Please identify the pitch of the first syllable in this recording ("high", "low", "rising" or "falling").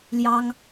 high